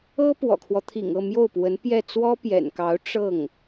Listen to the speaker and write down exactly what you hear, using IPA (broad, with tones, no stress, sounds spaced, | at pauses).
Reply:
ɤ˥ p w ɔ̰˨˩ kʰ w ɔ˦ t̪ʰ ḭ˨˩ ŋ ɤ˥˧ m j o˥˩ ʊ̯ p w ə˧˥ n p j ɛ˥˩ t͡s w ɔ˥ p j ɛ̰˨˩ n k ɑ˧˥ ʊ̯ ʈ͡ʂ ɤ˥˩ ŋ